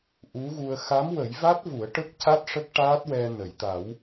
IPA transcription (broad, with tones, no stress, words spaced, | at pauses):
ʔu˧˥ɣu˧ə̯ xa˧˥mwə˨˩˦jva˦˥t̚ vu˨˩˦ə̯ʈə˦˥k̚ca˦˥t̚ ʂə˦˥k̚ʈaː˦˥t̚wɛ˧ nə˨˩˨jt̪a˨˩˦w